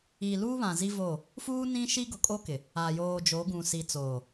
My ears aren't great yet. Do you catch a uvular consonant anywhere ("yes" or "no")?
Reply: no